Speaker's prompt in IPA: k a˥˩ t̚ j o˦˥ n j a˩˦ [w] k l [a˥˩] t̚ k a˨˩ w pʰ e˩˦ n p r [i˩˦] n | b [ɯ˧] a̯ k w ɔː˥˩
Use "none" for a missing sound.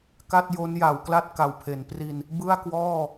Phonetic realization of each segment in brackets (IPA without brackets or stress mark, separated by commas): w, a˥˩, i˧, ɯ˥˩